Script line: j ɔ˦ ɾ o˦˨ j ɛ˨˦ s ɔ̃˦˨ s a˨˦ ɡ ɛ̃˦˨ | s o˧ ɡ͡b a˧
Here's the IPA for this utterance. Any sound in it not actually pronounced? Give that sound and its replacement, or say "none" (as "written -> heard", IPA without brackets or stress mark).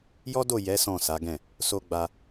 ɾ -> d